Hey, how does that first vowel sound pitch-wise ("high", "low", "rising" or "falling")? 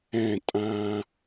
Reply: falling